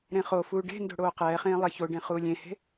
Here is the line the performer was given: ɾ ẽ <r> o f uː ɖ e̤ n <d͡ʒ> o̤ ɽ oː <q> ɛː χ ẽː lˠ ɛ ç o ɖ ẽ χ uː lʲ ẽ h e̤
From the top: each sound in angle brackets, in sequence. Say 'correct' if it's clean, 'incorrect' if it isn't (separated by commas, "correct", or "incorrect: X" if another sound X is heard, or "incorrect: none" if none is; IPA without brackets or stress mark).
incorrect: χ, incorrect: d, correct